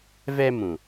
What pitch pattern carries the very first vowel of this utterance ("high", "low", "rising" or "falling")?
high